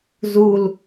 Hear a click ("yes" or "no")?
no